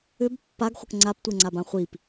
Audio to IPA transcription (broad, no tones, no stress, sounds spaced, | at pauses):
ʏ b pː a ɡ χʷ ə k ŋ͡ǀ a p tʷ e ŋ͡ǀ a b ã χʷ i p